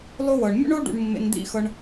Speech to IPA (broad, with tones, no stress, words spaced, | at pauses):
lˠo˥wɤ˩ɳ mʲṵ˥ɳo˥ ɖṵ˧ɳmːḛ˧nd̪ḭ˥xɤ˧ɳ